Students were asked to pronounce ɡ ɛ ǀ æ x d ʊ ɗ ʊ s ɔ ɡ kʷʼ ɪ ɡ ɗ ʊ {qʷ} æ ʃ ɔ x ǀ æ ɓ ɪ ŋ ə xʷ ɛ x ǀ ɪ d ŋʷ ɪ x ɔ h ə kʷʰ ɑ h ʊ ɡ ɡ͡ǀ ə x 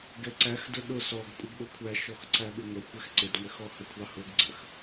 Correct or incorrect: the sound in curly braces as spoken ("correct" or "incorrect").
incorrect